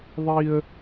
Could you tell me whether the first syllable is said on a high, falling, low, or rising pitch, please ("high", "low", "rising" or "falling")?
high